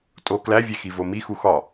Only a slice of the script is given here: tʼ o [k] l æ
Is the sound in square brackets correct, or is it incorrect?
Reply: correct